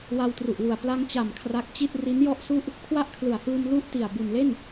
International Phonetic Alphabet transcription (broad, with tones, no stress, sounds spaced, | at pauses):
w a˧ w t r u˨˩ ʔ w u˨˩ a̯ p l a˧ ŋ t͡ɕ a˨˩ m kʰ r a˦˥ k̚ t͡ɕ i˥˩ t̚ r i˦˥ n j ɔ˥˩ ʔ s u˥˩ ʔ | kʰ w a˥˩ ʔ kʰ l ɯ˨˩ a̯ f ɯː˧ m l u˥˩ ʔ t i˨˩ a̯ b u˨˩ n l e˥˩ n